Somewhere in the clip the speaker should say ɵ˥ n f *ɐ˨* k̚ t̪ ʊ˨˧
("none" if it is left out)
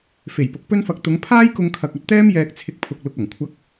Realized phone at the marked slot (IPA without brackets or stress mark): ɐ˧